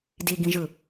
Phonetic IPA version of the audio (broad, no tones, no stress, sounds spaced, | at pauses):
d i ɡ ĩ ʒ ɯ